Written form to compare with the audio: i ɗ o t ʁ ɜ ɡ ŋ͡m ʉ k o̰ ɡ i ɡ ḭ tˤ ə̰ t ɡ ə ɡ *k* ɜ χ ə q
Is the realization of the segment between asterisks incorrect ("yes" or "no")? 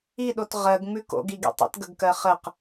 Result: no